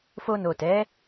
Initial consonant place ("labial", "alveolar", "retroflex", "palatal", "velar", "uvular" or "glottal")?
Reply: labial